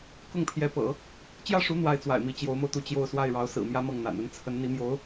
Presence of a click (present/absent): absent